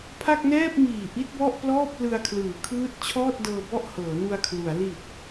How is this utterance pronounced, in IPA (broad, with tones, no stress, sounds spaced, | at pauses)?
pʰ a˥˩ k̚ n ɛː˥˩ p̚ m iː˨˩ ʔ i˦˥ t̚ b ɔ˥˩ ʔ p l ɔː˥˩ p̚ l ɯ˧ a̯ kʰ l ɯː˩˦ kʰ ɯː˦˥ t̚ t͡ɕʰ ɔː˥˩ t̚ d ɤː˧ b ɔ˥˩ ʔ h ɤː˩˦ n u˧ a̯ kʰ l u˩˦ a̯ l i˨˩ t̚